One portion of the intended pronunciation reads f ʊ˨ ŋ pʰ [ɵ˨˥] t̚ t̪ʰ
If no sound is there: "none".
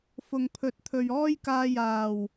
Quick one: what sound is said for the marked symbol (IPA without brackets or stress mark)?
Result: ɵ˨˥